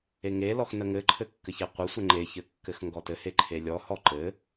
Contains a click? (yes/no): yes